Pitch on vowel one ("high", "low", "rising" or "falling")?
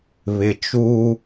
low